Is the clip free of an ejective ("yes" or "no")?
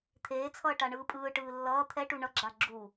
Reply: no